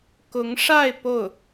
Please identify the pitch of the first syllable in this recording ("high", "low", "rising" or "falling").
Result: rising